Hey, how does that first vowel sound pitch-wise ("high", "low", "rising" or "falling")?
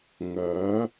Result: rising